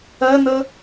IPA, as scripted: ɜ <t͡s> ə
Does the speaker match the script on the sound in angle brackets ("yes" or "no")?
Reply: no